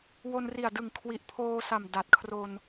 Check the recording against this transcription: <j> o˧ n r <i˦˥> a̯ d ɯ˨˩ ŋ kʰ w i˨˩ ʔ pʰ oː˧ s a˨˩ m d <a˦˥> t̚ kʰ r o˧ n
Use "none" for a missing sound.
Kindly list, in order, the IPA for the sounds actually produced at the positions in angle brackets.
w, i˨˩, a˨˩

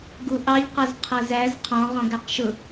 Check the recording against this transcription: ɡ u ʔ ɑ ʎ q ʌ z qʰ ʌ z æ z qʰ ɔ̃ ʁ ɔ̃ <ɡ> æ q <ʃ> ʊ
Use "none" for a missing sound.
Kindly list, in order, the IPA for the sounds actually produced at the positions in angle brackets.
ɡ, ʃ

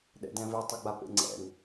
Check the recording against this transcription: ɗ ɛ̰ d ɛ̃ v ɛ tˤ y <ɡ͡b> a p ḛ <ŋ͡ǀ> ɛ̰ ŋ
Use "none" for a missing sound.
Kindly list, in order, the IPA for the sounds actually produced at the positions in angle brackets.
ɡ͡b, ŋ͡ǀ

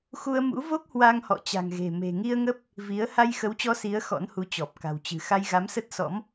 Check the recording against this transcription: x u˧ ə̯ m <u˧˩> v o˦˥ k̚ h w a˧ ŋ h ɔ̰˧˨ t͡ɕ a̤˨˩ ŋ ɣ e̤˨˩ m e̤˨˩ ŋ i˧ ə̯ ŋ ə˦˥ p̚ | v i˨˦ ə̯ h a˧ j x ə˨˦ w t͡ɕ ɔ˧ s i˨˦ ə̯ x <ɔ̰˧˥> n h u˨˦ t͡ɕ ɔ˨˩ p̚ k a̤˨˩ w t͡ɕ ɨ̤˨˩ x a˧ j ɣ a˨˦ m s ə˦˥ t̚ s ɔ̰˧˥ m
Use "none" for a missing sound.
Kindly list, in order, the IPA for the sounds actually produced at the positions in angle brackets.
ṵ˧˥, ɔ̰˧˥

